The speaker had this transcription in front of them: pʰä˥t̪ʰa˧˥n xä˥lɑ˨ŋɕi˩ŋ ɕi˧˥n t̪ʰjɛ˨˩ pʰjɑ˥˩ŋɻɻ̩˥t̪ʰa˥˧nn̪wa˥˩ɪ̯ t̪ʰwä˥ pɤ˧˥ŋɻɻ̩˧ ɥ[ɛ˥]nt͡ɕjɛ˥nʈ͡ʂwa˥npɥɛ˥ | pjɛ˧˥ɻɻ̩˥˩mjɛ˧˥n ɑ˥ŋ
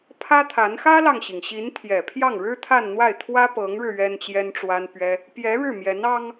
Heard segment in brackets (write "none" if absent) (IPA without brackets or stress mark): ɛ˥